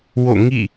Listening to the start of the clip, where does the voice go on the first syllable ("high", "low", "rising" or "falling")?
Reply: falling